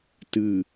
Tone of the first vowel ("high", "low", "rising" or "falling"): low